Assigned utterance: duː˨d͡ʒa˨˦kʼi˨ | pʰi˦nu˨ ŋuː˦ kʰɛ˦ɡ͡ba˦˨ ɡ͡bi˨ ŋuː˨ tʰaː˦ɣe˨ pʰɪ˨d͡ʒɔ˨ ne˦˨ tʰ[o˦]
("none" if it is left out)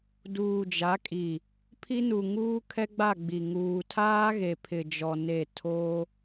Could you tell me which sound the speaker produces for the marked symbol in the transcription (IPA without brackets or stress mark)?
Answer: o˦